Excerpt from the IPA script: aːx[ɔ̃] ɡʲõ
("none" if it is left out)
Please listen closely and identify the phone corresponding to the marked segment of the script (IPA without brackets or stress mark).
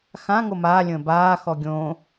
ɔ